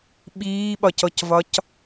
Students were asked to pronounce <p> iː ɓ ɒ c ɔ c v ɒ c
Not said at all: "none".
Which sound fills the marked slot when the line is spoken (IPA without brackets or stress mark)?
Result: ɓ